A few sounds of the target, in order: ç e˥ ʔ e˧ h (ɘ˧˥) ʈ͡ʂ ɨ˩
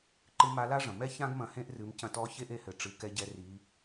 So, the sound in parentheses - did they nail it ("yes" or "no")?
no